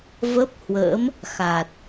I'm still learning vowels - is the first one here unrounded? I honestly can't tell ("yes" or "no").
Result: yes